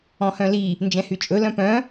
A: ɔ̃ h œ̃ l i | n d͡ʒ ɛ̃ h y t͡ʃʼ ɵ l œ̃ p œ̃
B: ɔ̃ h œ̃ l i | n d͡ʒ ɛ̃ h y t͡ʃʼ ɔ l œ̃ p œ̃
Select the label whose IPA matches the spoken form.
A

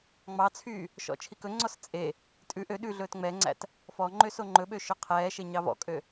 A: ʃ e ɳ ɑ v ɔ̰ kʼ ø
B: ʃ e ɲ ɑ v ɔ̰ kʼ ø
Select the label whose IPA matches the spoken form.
B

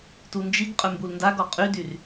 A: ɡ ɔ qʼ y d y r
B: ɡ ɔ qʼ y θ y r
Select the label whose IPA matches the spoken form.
A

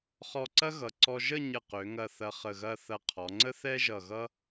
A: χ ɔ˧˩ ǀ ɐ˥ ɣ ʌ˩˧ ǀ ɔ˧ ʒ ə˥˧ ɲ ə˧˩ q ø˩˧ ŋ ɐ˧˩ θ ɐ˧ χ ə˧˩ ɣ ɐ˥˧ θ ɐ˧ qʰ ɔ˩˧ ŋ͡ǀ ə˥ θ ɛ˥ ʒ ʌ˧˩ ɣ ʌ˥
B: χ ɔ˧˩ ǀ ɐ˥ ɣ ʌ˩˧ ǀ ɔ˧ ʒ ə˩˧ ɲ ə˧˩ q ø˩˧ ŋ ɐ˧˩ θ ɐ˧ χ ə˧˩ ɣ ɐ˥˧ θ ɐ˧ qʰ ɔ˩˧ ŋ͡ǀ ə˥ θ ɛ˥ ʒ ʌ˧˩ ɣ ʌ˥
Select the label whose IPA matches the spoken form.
A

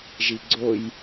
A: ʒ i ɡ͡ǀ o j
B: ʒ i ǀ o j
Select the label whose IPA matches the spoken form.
A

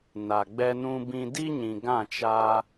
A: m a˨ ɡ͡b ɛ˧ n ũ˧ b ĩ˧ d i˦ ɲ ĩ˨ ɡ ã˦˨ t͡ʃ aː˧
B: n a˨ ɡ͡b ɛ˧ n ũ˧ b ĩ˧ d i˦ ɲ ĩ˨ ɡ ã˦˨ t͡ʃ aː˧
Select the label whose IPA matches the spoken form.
B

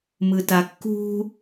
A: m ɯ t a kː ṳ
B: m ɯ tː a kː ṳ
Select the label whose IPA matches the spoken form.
A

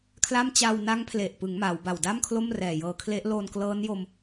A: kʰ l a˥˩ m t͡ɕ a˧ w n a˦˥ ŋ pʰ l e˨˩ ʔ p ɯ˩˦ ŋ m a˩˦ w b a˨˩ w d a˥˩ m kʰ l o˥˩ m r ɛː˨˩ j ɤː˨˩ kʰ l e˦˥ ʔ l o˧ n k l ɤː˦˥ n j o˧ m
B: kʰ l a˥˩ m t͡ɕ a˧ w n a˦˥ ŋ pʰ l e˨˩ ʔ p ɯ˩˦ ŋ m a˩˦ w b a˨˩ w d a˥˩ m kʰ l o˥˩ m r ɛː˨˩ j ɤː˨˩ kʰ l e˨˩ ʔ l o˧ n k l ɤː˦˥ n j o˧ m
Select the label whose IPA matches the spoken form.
A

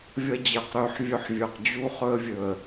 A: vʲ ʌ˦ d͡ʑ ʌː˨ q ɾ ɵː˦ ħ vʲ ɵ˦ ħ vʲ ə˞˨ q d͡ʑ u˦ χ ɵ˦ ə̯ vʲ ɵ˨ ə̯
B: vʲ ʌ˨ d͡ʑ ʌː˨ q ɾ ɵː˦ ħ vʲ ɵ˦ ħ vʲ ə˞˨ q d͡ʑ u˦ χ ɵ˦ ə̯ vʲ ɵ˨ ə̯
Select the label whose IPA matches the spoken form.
A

